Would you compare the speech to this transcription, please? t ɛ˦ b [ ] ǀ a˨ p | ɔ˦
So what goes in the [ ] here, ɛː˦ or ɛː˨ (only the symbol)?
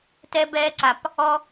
ɛː˦